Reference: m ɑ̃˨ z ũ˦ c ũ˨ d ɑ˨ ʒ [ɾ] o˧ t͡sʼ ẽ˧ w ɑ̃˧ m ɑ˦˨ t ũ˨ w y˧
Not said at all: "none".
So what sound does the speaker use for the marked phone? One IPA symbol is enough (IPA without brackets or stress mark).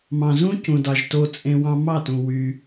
t